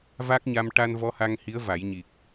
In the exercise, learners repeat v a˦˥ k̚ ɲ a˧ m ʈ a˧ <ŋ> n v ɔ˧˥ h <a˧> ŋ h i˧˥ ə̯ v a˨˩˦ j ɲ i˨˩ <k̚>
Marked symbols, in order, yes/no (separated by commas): no, yes, yes